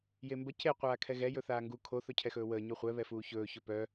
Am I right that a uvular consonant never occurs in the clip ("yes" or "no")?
no